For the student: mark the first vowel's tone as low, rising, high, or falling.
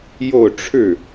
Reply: falling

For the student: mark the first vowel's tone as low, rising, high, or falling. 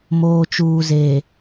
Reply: high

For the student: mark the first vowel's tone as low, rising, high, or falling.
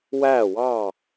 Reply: falling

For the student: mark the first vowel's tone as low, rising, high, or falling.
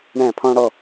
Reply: falling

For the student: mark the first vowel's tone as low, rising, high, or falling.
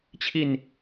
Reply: falling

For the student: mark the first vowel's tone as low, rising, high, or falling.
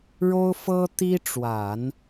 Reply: high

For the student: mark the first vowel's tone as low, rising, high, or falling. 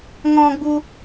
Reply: high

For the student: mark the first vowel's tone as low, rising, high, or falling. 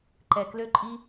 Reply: low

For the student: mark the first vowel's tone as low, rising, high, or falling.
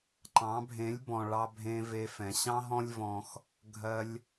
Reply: rising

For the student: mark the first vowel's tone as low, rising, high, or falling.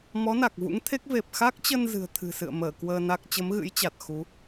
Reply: rising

